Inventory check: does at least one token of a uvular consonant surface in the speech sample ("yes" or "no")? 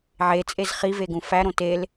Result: yes